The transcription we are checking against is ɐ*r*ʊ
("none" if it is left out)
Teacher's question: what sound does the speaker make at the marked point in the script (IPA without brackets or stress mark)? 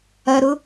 ɾ